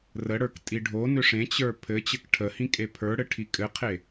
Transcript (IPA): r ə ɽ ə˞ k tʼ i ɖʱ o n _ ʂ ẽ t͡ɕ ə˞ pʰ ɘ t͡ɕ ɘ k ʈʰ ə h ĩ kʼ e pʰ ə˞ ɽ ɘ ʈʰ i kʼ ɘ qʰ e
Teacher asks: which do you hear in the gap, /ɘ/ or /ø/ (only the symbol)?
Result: ø